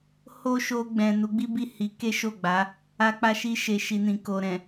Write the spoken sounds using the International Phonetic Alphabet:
h o˦ ʃ o˧ ɡ͡b ɛ̃˨ n u˨˦ ɡ͡b i˦ b i˦˨ h i˨˦ k e˦ ʃ o˦˨ ɡ͡b a˨˦ | a˧ k͡p a˧ ʃ i˧ ʃ e˨ ʃ i˨ n ĩ˨ k o˨ ɾ ɛ̃˨

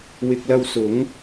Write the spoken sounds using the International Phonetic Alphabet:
w ɪ˨ k̚ l ɐ˧ w s ʊ˨˥ ŋ

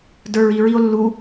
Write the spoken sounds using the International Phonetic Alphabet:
d ə˞ ɹ i ɹ i o̯ lː u

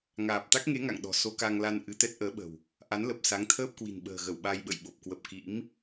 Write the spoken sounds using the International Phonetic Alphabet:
ŋ aː˨˩ p̚ t̪ a˦˥ k̚ ŋ e˨˦ ŋ a̰˧˨ ŋ ɗ ɔ̤˨˩ s o˧ k a˧ ŋ l a˧ n ʔ ɨ˨˦ t̪ ɛ˦˥ t̚ ʔ əː˨˦ ɓ ə̤˨˩ w | ʔ a˨˦ n l ə˨˩ p̚ s a˨˦ ŋ t̪ʰ əː˦˥ p̚ k w i̤˨˩ n ɓ ə̤ː˨˩ ɣ ə˧˩ w ɓ a˧ j ɓ ə̰˧˨ j ɓ o˨˩ p̚ k w ə˨˩ p̚ k ḭ˧˥ m

